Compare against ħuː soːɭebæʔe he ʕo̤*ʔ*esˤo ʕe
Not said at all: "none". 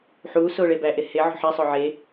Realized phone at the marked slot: ħ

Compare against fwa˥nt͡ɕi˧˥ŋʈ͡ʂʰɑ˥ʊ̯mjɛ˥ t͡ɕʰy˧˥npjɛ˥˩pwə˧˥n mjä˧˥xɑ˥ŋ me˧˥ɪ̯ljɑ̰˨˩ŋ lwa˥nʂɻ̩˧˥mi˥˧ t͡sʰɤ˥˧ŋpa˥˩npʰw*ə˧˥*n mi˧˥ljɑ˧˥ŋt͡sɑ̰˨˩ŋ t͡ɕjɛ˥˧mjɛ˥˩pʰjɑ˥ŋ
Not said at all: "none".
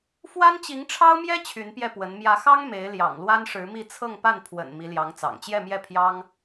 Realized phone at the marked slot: ə̰˨˩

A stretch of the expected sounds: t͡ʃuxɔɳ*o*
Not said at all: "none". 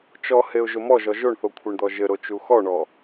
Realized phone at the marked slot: ɔ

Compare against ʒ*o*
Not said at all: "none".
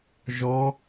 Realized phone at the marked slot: ɔ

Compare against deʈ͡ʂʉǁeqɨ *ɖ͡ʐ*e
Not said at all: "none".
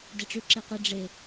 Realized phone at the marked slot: ɖ͡ʐ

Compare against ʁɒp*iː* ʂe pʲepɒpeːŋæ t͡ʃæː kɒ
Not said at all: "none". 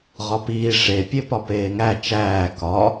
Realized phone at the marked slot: iː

